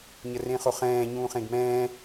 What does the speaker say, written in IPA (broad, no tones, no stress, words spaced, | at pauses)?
ɲərẽχoχɛ̃ː ɲũːχẽɡmɛ̃ː